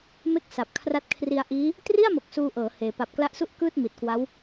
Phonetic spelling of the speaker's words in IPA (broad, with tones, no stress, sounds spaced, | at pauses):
m e˥˩ k̚ s a˨˩ p̚ kʰ r a˦˥ t̚ kʰ r i˧ a̯ ʔ iː˦˥ | t r i˥˩ a̯ m o˨˩ k̚ s uː˧ ʔ ɤː˩˦ h eː˩˦ p a˨˩ p̚ k l a˦˥ ʔ s u˥˩ ʔ k ɯː˥˩ t̚ m i˨˩ t̚ k w a˦˥ w